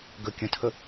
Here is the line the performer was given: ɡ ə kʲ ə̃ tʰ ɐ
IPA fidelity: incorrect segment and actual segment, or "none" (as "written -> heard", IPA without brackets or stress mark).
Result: ɐ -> ə